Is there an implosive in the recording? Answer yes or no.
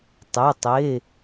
no